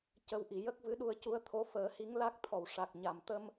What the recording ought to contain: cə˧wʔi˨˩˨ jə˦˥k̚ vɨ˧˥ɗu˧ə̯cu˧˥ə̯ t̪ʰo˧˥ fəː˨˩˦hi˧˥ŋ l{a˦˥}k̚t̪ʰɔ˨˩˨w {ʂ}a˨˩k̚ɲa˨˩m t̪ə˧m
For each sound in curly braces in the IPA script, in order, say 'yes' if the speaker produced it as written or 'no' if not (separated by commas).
yes, yes